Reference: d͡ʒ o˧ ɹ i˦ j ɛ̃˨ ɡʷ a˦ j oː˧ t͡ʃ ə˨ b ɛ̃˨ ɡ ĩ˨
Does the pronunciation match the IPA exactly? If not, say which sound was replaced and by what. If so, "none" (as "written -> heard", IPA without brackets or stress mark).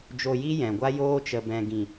ɹ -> j